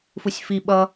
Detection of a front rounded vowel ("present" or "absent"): absent